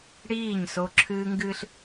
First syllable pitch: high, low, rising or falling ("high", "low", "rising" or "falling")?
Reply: falling